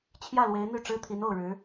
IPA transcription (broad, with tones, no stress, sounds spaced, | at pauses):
t͡ɕʰ j ä˥˩ l w e˧˥ ɪ̯ n̪ y˥˩ ʈ͡ʂ ɻ̩˥ t̪ʰ i˧˥ n o˥˩ ʊ̯ ɻ ɻ̩˧˥